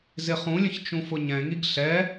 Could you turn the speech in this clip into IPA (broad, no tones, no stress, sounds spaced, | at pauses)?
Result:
z ɪ χ ũ lʲ ə̃ ç t͡ʃ ũ f ʊ ɲ ɛ̃ ŋ i ɡ ɬ ɛ